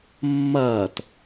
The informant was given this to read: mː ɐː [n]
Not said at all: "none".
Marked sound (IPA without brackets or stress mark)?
t